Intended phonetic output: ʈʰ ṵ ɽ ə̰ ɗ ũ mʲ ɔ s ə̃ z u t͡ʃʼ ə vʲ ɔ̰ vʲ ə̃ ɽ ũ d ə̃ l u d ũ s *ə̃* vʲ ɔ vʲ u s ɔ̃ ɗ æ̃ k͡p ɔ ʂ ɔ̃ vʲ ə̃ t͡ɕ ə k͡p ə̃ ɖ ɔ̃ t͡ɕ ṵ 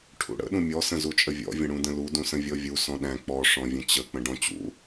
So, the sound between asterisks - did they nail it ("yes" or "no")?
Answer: yes